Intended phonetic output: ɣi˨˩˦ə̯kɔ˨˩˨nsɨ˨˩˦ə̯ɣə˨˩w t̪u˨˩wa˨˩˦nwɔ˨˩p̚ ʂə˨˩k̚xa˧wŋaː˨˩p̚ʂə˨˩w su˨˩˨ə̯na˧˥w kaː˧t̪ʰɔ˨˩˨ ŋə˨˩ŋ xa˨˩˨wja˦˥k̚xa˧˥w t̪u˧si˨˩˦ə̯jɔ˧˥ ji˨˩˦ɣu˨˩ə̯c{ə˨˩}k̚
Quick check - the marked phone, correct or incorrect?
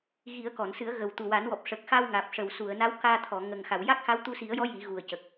correct